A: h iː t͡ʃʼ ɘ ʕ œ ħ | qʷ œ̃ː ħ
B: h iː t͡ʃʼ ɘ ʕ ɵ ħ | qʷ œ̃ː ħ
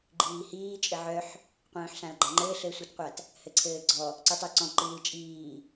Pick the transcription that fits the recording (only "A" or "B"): A